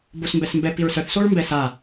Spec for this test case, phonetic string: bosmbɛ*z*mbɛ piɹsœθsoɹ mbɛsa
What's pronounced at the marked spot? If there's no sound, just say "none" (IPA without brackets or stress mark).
s